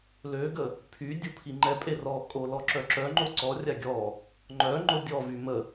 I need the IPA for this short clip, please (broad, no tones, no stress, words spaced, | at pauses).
løɡə | pʰy dʲupʰiŋ͡ǃɛpʼe rɔkʼo lɔǁœǁœŋ͡ǃo ǀɔrʲa ɡʲɔ | ŋ͡ǃœ ŋ͡ǃodʲɔvy mə